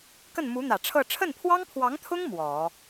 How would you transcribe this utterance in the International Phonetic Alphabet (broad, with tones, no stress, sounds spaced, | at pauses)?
k ə˥˩ n m u˧˥ n̪ ä˨˩ ʈ͡ʂʰ ɤ˥˧ ʈ͡ʂʰ ə˥˩ n pʰ w ɑ˥ ŋ pʰ w ɑ˧˥ ŋ t̪ʰ ʊ˥ ŋ m w ɔ˨˩˦